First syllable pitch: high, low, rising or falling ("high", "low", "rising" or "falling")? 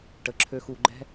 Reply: rising